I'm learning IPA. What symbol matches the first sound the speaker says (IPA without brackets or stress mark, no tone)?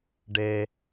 ɖ